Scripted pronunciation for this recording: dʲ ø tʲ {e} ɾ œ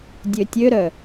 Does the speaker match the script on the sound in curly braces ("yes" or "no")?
no